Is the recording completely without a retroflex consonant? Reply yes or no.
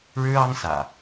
no